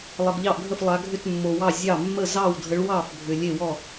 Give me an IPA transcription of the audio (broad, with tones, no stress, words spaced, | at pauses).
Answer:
lˠə˨ɡʎɑ˥˩ʔɡʱə˥˩flˠa˨˦ ɡʱʏ˥˩tmːo˨wɑ˥˩ zʲɑ˥˩ mːə˥˩zɑ˥˩wdʱə˨˦ɭwɑ˥˩f bʱʏ˨lʲe˥˩wɔ˥˩